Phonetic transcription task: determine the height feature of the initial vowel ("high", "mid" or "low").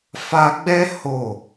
low